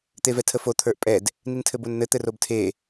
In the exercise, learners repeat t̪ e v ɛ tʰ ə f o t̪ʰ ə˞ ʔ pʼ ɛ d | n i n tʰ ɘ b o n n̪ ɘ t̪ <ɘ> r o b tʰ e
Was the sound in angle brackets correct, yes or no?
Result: yes